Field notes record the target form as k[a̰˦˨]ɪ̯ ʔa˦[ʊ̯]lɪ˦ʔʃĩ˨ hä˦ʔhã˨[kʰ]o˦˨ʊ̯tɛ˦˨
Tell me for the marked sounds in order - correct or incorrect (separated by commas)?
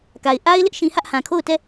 incorrect, incorrect, correct